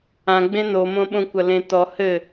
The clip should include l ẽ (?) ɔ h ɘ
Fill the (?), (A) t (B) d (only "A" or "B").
A